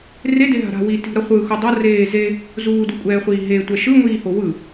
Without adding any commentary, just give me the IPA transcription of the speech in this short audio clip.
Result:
r e d e ɦ a̤ ɾ a̤ w i t i̤ ɾ ʌ χʷ ɯ x u dˤ ʌ r eː z e | z uː d u kʷʼ ɛː χʷ iː ɦ e tʷ ɛ ʃ ɯ ŋʷ iː h o w ɯ

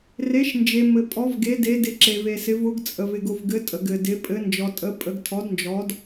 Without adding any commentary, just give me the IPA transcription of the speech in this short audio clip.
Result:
r e˨˦ ʃ n d͡ʒ e˨ m ɘ˨ pʼ ɔ˨˦ v ɡ e˨˦ d e˨˦ d ɪ˨˦ ǁ e˨ v e˨ s ɪ˨˦ v ʊ˨˦ ɡ t͡sʼ ə˨ v ɪ˨ ɡ ʊ˨ v ɡ ɘ˨˦ tʼ ə˨ ɡ ɘ˨ d ɪ˨˦ pʼ ɘ˨˦ n d͡ʒ ɔ˨ tʼ ə˨˦ pʼ ə˨˦ ɡ tʰ ɔ˨˦ d n d͡ʒ ɔ˨˦ d

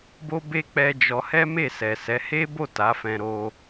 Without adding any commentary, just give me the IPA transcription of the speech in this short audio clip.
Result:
b o˦ b e˦ k͡p ɛ˧ d͡ʒ ɔ˧ h ɛ˦ m e˦˨ s ɛ˨ s ɛ˨˦ h e˦ b o˦˨ t a˨˦ f ɛ̃˧ ɾ o˧

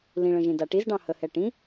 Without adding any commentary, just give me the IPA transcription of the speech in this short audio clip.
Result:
l ĩ ɭ ə̃ ʒ ĩ d a ʈ i z ɖ ɑ̃ h ə h ɛ ʈ ĩ

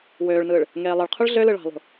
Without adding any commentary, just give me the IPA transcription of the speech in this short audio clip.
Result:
w øː ɭ n ɯː ɭ | ŋ eː lˠ ɯ ɭ qʰ u ɭ ɮ ø l ɯ ɭ ɑ̤ lˠ ṳ

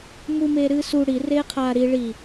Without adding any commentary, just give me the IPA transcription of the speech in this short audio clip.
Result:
m u m eː ɾ ɨː s u ɽ i r eː qʰ aː ɾ i ɭ i

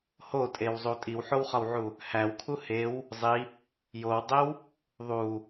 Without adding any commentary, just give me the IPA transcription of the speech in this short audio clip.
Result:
h o tʼ e w zˤ u tʼ i w ħ o w χ ɒ w ʕ u | h æ w kʰ u h e w | zˤ i | j o w dˤ e w | ðˤ u

